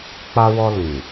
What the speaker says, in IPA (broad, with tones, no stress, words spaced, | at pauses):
k͡pa˧wɔ˧ lĩ˨